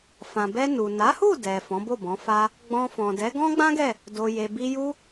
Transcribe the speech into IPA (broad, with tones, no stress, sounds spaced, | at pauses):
f ã˨ b ɛ˧ n u˨ n a˨˦ h u˦˨ d ɛ˨ f ɔ̃˨˦ b o˦˨ b ɔ̃˨˦ f a˦ | ɡ͡b ɔ̃˧ f ɔ̃˨ d ɛ˨˦ ɡ ɔ̃˦ ɡ͡b ã˦ ɡ ɛ˦˨ | d o˧ j e˧ b i˦ j u˦